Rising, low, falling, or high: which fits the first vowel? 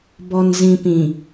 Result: low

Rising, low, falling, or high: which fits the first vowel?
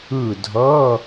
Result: falling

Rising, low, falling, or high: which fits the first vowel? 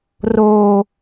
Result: high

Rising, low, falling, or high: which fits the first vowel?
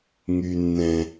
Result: low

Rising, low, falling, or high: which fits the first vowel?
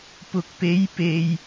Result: rising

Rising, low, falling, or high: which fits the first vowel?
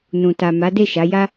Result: low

